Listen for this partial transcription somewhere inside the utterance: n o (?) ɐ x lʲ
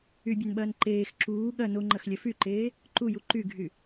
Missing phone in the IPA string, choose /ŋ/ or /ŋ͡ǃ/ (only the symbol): ŋ͡ǃ